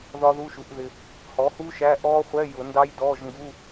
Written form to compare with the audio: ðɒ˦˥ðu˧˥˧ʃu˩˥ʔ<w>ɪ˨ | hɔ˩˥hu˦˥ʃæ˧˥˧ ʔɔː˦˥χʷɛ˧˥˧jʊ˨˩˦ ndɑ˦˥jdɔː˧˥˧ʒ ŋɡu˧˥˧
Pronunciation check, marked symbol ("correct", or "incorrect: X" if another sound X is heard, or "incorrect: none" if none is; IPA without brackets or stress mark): incorrect: ð